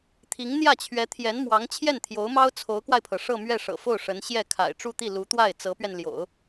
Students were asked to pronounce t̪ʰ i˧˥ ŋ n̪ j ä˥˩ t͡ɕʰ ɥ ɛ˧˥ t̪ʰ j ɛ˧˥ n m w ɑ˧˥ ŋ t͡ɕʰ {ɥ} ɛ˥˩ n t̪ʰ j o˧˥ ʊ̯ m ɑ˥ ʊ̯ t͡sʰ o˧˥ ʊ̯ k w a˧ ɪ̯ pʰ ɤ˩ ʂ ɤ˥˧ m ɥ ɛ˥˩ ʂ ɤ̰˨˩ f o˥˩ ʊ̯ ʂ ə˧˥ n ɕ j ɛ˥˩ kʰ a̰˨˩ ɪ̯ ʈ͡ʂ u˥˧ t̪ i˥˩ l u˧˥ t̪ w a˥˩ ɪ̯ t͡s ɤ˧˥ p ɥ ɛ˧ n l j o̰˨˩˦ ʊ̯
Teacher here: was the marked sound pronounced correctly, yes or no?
no